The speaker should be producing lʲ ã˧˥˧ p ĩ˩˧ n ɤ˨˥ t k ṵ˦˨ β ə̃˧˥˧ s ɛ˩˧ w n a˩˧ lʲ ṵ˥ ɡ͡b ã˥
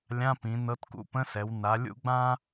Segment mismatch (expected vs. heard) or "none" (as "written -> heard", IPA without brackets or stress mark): β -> p